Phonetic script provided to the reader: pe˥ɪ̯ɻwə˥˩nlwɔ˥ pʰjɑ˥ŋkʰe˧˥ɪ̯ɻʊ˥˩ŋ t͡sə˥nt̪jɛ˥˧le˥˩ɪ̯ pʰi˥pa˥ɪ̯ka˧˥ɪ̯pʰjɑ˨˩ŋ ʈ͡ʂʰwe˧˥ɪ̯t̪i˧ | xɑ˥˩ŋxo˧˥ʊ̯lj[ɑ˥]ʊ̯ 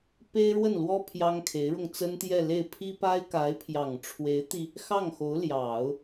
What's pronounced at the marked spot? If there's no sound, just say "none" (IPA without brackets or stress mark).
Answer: ɑ˨˩˦